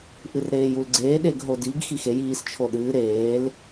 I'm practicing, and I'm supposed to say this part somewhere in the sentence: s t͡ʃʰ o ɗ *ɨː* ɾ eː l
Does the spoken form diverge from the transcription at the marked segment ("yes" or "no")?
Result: no